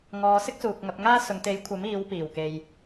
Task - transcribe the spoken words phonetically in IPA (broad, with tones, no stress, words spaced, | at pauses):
ŋɔː˨sɪ˥k̚ suː˨k̚ŋɐ˧p̚ŋaː˥ sʊ˨ŋt̪e˨˥jkʷʰɐ˨˥miː˨˧w piː˨˩wke˨j